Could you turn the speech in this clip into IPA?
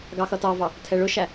ɡ ɑ x ʌ t ɑ v ɑ | tʰ ɛ ɭ ʊ ʃ æ

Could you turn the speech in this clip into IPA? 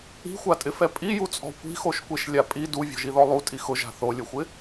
i̤ xʷ a tʼ ɪ f ɛ pʼ i j u t͡sʼ ɔ̤ kʷ i̤ x o ʃ kʷ e ʃ lʲ a pʼ i d u vʲ ɔ̤ ʒ i ð ɔ lˠ u tʼ i x ʊ ʒ a̤ θ o lʲ ʊ xʷ ɪ

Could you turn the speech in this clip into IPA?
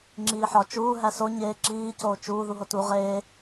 ŋ͡ǁ iː ħ ɒ t͡ʃ uː ɦ æ s o ɲ eː ǁ iː c oː t͡ʃ uː ð u ɦ o t u ʁ eː

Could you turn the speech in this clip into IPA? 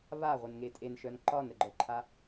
β a ʁʷ e n ŋ e tʼ e n ʃ œ n ǃ ɒ n ɾ ə ɡ͡ǃ œ ǃʰ a

